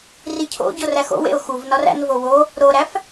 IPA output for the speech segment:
ricʰo̰ɟor æxo̰wḛʊ̯ xuvnɒr æ̰nvo wo | ɾoɾæf

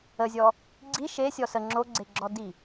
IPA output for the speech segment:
əzʲɔ | ɡ͡ǀi ʃe sʲɔsə ŋ͡ǁoɡ͡ǀeɡ͡ǁɔdi

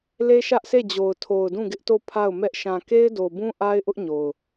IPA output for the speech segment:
le˦ʃä˦ʔse˦˨d͡ʑo˨ʊ̯ tʰo˨ʊ̯dũ˦˨ɡɪ˦ʔto˦˨ pʰa˦˨ʊ̯mɛ˦ʔ ʃã˨ke˦ɪ̯do˨bũ˦ ʔa˦ɪ̯ʔʊ˦ʔɲo˨ʊ̯

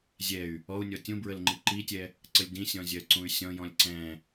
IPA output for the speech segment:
zʲɛy̯ | ɔu̯nʲɔ tʲũbɹəl ŋ͡ǃiǃitʲɛ | ǀəlʲdĩsʲɔ̃ zʲɜǀũy̯sʲɔ̃jɔ̃lʲ ǀɛ̃

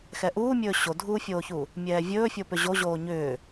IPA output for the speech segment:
xɛʔuːmʲɵː ɕodʱuːfʲoːçu | mʲɛːvʲɵːfʲo pʏʑoʑoː ɲʏː

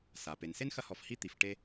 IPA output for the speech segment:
sa˩pe˩n se˥nxɐ˦hɔ˨fhi˦ t̪i˩f ʈe˦

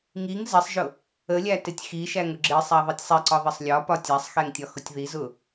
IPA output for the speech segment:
ŋiŋ zɛsˤʒʊ | əlʲæ tɪtʲxiʃæŋ ʊɡ͡ǁɪsˤæ ðˤitʲsˤɛǀɒ ðˤɪsˤlʲɒpɒtʲ æsˤxɛŋ tʲɒxʊtʲðizʊ

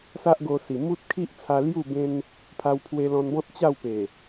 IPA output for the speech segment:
sa˦ʔɡo˧si˨˩ mu˦t̚kʰi˦ʔt͡sʰa˧ lju˥˧ bẽ˦n | pʰa˧wpʰwe˧lɔ̃˧nbɔ̃˦t̚ t͡ɕa˥˧wpe˨˩

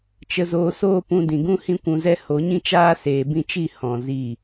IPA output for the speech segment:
t͡ʃə˨zoː˨soː˧ pũ˧dĩ˨ɡũ˦ hĩ˧kʷũ˨zɛ˧ ho˨˦ɲĩ˦t͡ʃaː˦ seː˨bĩ˧t͡ʃi˦˨ hɔ̃˧zi˦˨

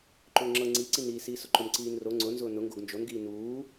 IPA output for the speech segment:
ǃʊːŋ͡ǁɤ ŋ͡ǀiǀiniː siːsʊǃʊm ǀiːnro ŋ͡ǀʊ nzʊːnʊ ŋɡoɡnd͡ʒonɡiː nuː

